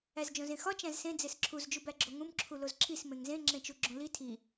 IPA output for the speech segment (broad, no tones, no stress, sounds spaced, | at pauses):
æ z d͡ʒ õ z ẽ x ɒ t͡ʃ æ̃ z s ẽ d͡z e s ǁʰ u z d͡ʒ u b æ ɡ͡ǁ o ŋ ũ m ǁʰ u l o z ǁʰ i s m ẽ ŋ z ẽ ŋ͡ǁ ẽ t͡ʃ u ɡ͡ǁ õ l i tʰ i